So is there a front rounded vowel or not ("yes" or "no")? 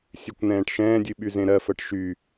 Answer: yes